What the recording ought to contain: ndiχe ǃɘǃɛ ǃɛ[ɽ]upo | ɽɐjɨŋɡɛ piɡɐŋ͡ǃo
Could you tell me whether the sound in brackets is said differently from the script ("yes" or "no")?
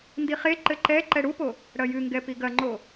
no